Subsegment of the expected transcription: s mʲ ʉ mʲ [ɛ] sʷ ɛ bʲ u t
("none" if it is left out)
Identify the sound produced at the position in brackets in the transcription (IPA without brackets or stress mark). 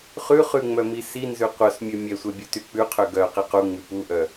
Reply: ɛ